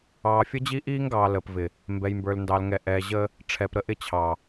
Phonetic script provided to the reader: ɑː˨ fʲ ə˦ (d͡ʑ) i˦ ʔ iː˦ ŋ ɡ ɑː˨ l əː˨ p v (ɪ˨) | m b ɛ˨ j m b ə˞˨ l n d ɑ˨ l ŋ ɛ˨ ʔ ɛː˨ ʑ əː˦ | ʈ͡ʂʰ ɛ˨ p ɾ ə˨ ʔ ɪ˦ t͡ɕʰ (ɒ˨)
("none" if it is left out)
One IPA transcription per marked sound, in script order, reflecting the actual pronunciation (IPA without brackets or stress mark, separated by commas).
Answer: d͡ʑ, ɪ˨, ɑ˨